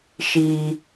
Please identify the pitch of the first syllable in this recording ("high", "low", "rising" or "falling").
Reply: low